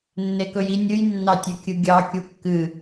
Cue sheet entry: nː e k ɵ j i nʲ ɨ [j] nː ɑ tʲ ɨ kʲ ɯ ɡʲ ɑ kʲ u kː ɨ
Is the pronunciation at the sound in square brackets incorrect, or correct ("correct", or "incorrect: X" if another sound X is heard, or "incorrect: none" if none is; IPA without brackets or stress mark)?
correct